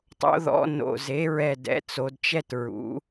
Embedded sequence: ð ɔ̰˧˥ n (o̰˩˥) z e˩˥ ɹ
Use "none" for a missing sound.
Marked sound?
o̰˧˩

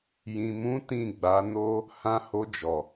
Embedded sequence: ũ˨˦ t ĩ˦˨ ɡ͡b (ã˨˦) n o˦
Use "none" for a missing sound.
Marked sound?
a˨˦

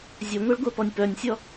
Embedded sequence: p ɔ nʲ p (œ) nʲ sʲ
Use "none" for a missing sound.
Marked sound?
œ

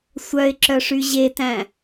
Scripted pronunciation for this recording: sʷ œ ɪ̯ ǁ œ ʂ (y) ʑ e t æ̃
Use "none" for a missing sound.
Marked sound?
y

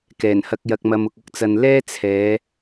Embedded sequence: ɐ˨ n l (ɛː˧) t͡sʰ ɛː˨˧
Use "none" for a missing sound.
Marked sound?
ɛː˥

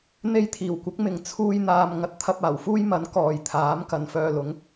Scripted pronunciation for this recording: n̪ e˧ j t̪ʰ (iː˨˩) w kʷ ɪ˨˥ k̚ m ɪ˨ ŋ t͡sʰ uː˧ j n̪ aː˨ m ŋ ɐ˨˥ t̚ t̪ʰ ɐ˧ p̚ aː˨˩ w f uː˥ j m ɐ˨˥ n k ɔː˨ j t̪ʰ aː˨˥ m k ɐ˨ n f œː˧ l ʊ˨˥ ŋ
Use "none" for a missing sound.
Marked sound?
iː˨˩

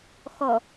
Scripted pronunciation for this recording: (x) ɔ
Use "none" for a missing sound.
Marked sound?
x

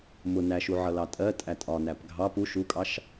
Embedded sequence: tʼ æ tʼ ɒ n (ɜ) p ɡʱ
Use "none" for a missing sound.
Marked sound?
æ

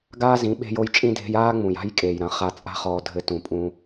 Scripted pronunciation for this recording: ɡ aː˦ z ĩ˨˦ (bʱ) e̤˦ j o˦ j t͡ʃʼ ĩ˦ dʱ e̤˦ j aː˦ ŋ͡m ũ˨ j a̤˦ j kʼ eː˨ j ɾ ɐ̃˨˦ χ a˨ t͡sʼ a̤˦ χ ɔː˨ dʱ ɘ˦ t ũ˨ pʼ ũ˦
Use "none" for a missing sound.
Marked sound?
ɓ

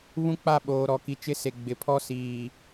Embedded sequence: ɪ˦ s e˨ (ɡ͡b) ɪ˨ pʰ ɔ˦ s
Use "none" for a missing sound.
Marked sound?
ɡ͡b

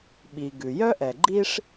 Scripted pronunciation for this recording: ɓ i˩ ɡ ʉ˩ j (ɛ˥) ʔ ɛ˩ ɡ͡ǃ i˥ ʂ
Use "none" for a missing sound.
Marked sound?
œ˥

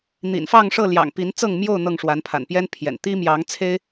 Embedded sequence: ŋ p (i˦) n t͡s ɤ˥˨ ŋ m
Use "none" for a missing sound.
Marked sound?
i˨˦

